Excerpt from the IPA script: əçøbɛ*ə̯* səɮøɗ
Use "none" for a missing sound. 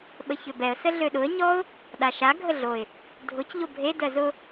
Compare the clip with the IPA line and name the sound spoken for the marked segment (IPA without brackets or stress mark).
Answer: ə̯